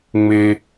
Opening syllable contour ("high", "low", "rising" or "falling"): low